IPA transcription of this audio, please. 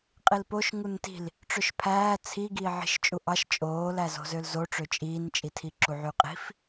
qʼ i l p o ʃ ŋ u n t i̤ l | ʈ͡ʂ ø ʃ pʰ æː t͡sʰ i ɡ iː ʕ i̤ ʃ t͡ʃʼ u ʔ ɑ ʃ t͡ʃʼ oː l æ z o̤ z ø l z o ʈ͡ʂ ø t͡ʃʼ iː n t͡ʃʼ i tʰ i ǁ u ʕ y qʼ i̤ f

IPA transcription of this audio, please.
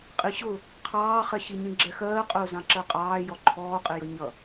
qʼ i ɕ ʊ | qʰ ɑː χ ɛ ɕ i ɲ ĩ ɡ͡ǁ ɛ x ɜː qʼ ʊː z ɑ̃ ǁ ɜ qʼ ɑː j ɔ ǃʰ ɔː qʼ ɪ j ʌ ɲ ʌ

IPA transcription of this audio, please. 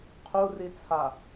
qʰ u r i t͡sʰ a

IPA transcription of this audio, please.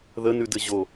ð ə n ʉ d ɘ ʑ o

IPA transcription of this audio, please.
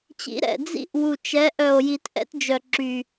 t͡ɕ ḭ˨˦ ɾ ɛ̰˨˩ d͡z ḭ˦ ʔ w u˨˩ t͡ʃ ɛ˨˦ ʔ œ˨˩ o̯ j i˨˩˦ t ʔ ɛ̰˦ t d͡ʒ œ˨˩ ǁ y˨˩

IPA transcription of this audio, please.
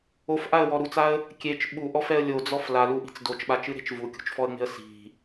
o f ʔ a ə̯ w ɔ ɾ u t͡s a ə̯ | kʲ e t͡ʃ ɓ u ʔ ɔ f ɛ ə̯ lʲ o d͡z ɔ f l a l u ʔ i̤ t͡s d o t͡ʃ ɓ a t͡ʃ ɨ ɾ e̤ t͡ʃ v u kʲ ṳ t͡ʃ f ɔ ə̯ ŋ͡m e̤ ə̯ s i̤

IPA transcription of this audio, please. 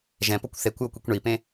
ʒ ɛ̃ p o kʷ θ e kʷ j o kʷ i kʷ ɳ i p ẽ

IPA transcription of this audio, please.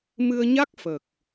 m ɨ˧ ə̯ ɲ a˦˥ k̚ f ə˨˩ k̚

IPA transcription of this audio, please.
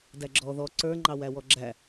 d æ ɡ͡ǁ ɔ ð ɔ ǀ ə˞ ŋ͡ǃ ɑ w æ w ɔ ɡ͡ǁ æ

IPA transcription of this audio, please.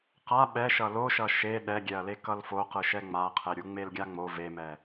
q a ɓ ɛ ʃ ʌ l o ʃ ʌ ʃ e ɗ ɛ ɡʲ ɛ ɐ̯ l e k ʌ l f o q ɯ ʃ ɛ ŋ͡m a qʰ e ɾʲ u ŋ͡m e l ɡʲ a ŋ͡m o v e m ɛ

